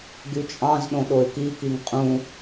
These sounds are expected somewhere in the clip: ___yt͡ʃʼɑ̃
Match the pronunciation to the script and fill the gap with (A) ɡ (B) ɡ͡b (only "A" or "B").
A